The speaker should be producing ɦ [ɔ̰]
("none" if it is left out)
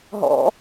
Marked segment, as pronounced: ɔ̰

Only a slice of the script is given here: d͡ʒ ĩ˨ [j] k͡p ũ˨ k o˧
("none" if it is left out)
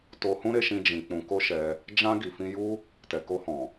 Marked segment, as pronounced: none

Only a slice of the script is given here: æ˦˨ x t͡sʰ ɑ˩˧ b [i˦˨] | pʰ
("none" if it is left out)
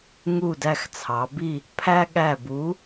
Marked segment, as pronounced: i˦˨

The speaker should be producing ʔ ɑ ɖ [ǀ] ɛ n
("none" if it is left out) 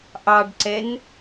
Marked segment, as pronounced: ǀ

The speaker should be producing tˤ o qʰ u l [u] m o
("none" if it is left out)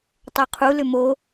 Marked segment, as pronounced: ʏ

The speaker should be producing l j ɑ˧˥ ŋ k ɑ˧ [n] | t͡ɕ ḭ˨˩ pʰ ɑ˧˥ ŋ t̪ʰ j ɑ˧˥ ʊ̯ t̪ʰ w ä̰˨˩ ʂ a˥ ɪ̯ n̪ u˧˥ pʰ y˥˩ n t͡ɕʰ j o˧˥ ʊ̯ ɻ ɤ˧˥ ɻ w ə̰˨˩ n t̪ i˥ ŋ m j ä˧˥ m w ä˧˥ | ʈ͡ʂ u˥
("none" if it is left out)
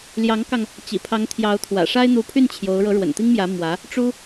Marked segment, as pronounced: ŋ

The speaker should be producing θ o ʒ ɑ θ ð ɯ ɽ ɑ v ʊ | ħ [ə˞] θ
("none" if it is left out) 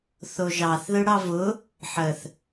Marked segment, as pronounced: ə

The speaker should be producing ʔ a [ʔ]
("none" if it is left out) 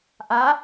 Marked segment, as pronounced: none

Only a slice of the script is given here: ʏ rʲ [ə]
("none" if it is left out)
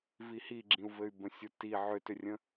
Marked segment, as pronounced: ə̃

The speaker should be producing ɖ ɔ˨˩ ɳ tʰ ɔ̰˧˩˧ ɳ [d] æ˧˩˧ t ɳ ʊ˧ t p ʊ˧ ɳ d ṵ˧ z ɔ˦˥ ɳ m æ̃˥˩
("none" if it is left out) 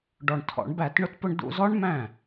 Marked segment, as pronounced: b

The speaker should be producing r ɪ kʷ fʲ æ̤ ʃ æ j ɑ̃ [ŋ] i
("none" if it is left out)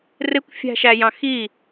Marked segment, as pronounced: x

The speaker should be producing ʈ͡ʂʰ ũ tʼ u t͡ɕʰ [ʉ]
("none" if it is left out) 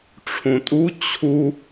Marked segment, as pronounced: u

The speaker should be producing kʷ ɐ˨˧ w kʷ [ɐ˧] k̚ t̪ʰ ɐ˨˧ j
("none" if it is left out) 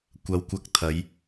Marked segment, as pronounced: ɐ˧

